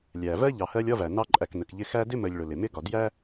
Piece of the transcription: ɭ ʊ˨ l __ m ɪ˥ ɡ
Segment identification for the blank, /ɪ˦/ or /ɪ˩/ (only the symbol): ɪ˩